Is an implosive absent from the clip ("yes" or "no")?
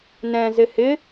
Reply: yes